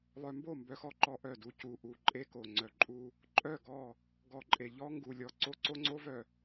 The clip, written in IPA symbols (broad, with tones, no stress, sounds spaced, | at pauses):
lˠ œ˨ m b o˦˨ m b œ˨ x ɔ˦ ǃ ɔ˨ ʔ œ˦˨ d u˦ c u˨ ʔ u˨ ǃʼ e˦ k o˨ ŋ͡ǀ œ˨ ǃʼ u˦ | ǃʼ œ˦˨ ɡ ɔ˦˨ | ɡ ɔ˨ ǃʼ e˨ ʎ ɔ˦ ŋ ɡ u˨ lʲ ɔ˨ ǀ o˦ ǀ o˦ ŋ͡ǀ o˦ v œ˨